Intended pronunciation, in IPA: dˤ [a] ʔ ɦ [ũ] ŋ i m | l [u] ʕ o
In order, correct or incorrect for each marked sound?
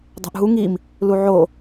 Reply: incorrect, incorrect, correct

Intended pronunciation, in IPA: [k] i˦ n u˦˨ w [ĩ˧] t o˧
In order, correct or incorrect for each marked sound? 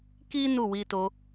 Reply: correct, incorrect

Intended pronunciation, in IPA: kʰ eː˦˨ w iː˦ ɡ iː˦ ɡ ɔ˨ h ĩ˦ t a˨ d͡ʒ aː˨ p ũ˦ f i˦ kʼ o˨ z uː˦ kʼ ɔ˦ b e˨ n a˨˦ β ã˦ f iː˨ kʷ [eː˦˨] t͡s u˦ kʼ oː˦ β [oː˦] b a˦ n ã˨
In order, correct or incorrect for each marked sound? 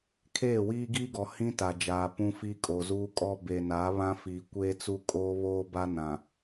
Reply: incorrect, correct

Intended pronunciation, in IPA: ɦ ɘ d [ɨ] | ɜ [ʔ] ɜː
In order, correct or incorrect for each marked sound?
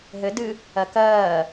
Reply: correct, incorrect

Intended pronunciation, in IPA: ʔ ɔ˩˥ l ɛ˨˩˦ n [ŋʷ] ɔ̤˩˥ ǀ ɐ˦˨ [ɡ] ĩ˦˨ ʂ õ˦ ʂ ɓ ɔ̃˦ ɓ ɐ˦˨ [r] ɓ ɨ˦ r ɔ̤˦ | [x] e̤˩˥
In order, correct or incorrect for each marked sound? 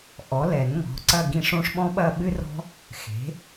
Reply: incorrect, correct, incorrect, correct

